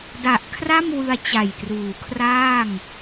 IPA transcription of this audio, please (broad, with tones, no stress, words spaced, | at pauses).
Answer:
da˨˩ʔkʰra˥˩mwɯ˧a̯ t͡ɕa˨˩jtruː˩˦kʰraː˥˩ŋ